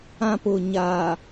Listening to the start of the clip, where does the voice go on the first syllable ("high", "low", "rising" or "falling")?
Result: high